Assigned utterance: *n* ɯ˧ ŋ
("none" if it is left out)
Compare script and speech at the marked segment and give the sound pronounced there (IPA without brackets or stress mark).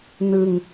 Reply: n